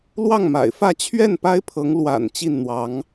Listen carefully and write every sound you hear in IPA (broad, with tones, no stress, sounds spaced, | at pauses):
l w ɑ˥˩ ŋ m a̰˨˩ ɪ̯ f ä˥˧ t͡ɕʰ ɥ ɛ˥˩ n p a˥ ɪ̯ pʰ ɤ˧˥ ŋ l w a̰˨˩ n t͡ɕ i˥˩ n n̪ w ɑ˧˥ ŋ